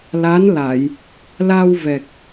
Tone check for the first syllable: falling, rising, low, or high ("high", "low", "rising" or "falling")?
rising